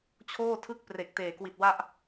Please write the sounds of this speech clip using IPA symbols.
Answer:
t͡ɕʰ oː˥˩ tʰ ɯ˥˩ k̚ p r e˨˩ k̚ t eː˨˩ k w i˨˩ t̚ w a˥˩ ʔ

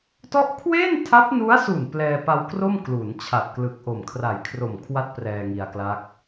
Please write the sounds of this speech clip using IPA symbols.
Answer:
t ɔ˥˩ ʔ kʰ w e˥˩ n tʰ a˦˥ p̚ n u˦˥ a̯ s u˨˩ n p l ɛː˧ p a˧ w k r o˥˩ m k l u˩˦ n t͡ɕʰ a˨˩ t̚ k l ɯ˨˩ k̚ ʔ o˨˩ m kʰ r a˨˩ j kʰ r o˨˩ m kʰ w a˦˥ t̚ p r ɛː˧ ŋ i˧ a̯ k l a˦˥ k̚

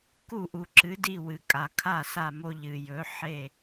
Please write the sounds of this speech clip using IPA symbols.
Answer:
k u˥˨ ʔ u˨ ǁ ɨ˨˥ d i˥˨ w ɨ˨ kʼ a˨ kʰ a˥˨ s a˥˨ m o˦ ʎ ɨ˨ j ɵ˨˥ ħ e˥˨

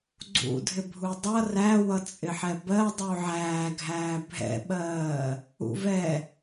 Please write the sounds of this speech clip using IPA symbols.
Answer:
ɡ͡ǀ ṵ dʱ ɪ bʱ u dˤ ʌ r æ w ʌ t͡sʼ ɪ ħ ɛ b ɜ dˤ u ʕ æː ɡʱ æː bʱ ɛ̰ ɓ ɜː | ṵ v ɛ

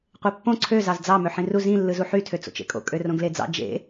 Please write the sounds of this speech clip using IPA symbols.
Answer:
qʷ e pː õ ǀʰ ø z ɑ z d͡z ɑ m ø ħ ĩ r u z ĩ lː ɯ z u ħ y tʰ ø t͡s o̰ t͡ʃ ḛ kʼ o̰ kʼ ø r õ ɡ l e d͡z ɑ̰ d͡ʒ ḛ

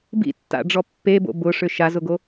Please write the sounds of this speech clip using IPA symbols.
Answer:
b ḭ tː a̰ ɖ͡ʐ ɔ pː e b o̰ b ʊ ʂ ʏ ʃ a z ʊ ɡ o

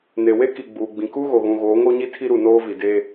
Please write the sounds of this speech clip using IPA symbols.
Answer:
n e˨ w e˦ k i˨ ɡ͡b uː˨ ɡ͡b ĩ˨ k u˦ ɣ o˨ ɣ ũ˨ ɣ oː˨˦ ŋ o˦ ɲ i˦ tʰ i˦ ɾ u˨ n oː˦ v i˨ d e˦

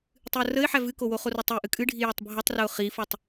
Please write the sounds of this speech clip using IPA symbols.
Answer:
tˤ ɨ ʊ̯ r ə ɪ̯ ħ æ v ɨ k o w o χ o r o tˤ i ʔ ɨ kʼ ɨ ɖʱ i j ə tˤ bʱ ə tˤ r ə ʊ̯ χ i f o tˤ

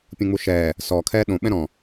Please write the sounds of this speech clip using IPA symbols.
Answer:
pʲ ũ ŋ͡m u ʃ ɛː | s ɔ kʰ ɛː ɗ õ ɓ ɛ̃ ɾ ɔ̃

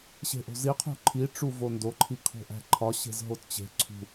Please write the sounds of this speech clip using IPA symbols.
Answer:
ɕ e̤ ʔ o̤ z i qʰ ṳ ǃʰ i ʈ͡ʂ u v o n d o ǃʰ i kʰ o̤ ʔ æ̤ ǃʰ ɒ ɕ e̤ z ɦ o t t͡ɕ e̤ ǀʰ ṳ

